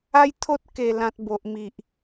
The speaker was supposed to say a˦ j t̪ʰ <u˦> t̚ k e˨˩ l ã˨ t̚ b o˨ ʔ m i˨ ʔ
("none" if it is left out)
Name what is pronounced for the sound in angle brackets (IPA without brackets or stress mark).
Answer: o˦